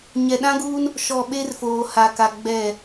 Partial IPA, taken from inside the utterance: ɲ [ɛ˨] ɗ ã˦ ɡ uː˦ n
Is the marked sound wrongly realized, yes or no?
no